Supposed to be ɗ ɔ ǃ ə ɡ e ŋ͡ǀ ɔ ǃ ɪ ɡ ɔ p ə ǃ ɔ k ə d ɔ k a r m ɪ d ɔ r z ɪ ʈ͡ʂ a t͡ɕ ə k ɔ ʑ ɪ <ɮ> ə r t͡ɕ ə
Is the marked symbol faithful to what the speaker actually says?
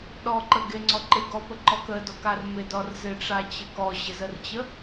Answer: no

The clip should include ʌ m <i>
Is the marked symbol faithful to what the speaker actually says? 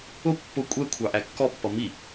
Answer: yes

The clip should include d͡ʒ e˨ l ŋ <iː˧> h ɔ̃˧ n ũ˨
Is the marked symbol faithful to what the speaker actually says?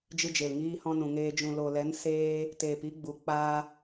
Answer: yes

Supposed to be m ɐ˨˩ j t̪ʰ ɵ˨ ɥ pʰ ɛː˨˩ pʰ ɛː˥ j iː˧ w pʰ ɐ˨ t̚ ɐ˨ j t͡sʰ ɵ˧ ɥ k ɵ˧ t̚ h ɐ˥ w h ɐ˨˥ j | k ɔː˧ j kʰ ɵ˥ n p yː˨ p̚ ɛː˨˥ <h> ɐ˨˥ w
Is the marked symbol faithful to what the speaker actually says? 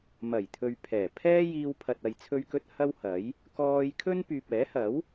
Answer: yes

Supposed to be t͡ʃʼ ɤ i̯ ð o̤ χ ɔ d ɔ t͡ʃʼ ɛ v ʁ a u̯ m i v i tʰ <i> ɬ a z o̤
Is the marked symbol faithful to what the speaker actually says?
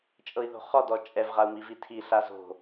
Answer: yes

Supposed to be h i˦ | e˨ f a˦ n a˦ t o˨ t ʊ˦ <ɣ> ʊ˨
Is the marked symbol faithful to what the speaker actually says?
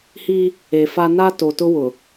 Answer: no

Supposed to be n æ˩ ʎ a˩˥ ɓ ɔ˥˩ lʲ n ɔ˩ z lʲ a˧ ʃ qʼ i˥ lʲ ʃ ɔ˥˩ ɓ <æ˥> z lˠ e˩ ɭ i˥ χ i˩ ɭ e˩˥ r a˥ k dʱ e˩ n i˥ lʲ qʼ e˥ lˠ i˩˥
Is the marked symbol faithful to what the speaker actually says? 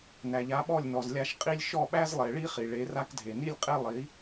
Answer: yes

